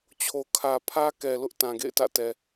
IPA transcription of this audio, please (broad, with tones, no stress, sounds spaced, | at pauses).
t͡ɕʰ o˨ kʰ ä˨ pʰ ä˦ k ɛ˨ l ʊ˦ ʔ t ã˨ ɡ ḛ˦˨ ɪ̯ t ä̰˦˨ t ɛ˨